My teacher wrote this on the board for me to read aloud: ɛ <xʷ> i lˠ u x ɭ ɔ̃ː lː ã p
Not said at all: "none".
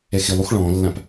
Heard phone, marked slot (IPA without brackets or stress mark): x